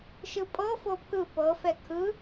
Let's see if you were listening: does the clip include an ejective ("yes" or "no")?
yes